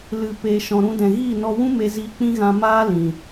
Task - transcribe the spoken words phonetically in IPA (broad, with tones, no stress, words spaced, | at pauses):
lɨ˨ pe˨ ʃɔ̃˨ɾũ˧dɛ̃˨ɣiː˦˨ nɔ˧wũ˦me˧ziː˧ k͡pĩ˧ɣã˨ maː˦ lĩ˨